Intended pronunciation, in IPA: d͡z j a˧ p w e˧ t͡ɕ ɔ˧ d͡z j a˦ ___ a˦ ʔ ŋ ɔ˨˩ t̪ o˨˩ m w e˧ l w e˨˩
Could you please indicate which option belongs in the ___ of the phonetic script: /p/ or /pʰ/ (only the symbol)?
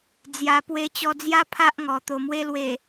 pʰ